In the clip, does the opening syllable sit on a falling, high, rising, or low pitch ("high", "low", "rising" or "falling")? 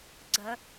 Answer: rising